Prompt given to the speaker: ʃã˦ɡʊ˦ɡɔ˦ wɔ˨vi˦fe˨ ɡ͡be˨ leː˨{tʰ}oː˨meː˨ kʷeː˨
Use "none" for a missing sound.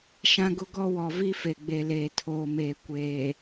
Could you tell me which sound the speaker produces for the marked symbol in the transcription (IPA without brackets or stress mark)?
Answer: tʰ